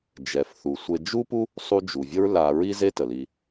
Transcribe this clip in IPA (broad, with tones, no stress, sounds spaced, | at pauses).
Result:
d͡ʒ ɛ˩ f θ u˩ sʷ e˨ d͡ʒ u˥ p u˥ | sˤ u˦ d͡ʒ u˩ vʲ ə˥ ɹ l a˨ ɹ i˥ z e˥ t ə˩ l i˨